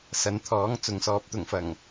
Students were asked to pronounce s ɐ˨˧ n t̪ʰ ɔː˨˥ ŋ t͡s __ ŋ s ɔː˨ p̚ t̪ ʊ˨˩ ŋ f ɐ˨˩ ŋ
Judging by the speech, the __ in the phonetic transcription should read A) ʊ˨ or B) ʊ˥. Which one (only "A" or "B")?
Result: A